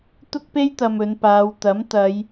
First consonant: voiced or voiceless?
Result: voiceless